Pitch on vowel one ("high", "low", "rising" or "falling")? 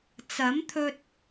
rising